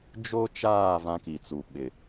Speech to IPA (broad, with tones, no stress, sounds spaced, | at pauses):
d͡ʒ o˦ t͡ʃ aː˦˨ v ã˦ k i˨ t͡s u˨ ɓ ɪ˨